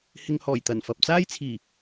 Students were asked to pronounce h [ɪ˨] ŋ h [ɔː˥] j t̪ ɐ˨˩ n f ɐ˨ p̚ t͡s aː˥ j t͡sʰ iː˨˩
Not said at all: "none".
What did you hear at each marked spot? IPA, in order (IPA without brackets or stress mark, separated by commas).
ɪ˨, ɔː˨˩